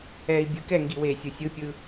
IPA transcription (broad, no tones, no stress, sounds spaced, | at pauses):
ɛː i̯ bʲ ɯ k ɛ ŋ ɡ i w eː sʲ ɯ sʲ ɯ pʲ ɯː